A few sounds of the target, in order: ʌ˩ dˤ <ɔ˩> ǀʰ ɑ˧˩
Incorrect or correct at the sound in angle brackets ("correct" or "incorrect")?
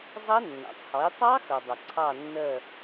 incorrect